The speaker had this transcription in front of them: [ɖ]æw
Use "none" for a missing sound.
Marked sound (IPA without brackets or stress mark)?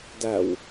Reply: d